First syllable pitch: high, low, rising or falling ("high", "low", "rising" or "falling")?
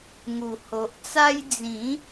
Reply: low